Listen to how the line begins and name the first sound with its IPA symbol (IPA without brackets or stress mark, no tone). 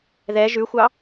ð